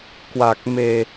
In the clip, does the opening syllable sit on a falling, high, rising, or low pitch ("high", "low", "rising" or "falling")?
low